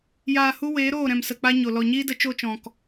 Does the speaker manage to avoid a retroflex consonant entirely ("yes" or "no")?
yes